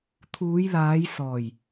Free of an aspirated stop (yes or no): no